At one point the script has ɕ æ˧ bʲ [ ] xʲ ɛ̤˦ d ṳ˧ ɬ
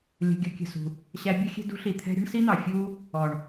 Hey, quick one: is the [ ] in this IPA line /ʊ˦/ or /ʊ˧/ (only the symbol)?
ʊ˦